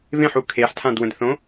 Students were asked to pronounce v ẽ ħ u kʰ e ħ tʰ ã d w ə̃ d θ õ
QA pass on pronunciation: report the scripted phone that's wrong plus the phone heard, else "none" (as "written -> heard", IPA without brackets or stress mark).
none